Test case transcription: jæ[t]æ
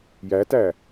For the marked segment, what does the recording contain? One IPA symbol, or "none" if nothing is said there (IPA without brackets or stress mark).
t